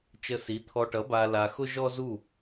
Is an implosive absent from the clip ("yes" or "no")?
yes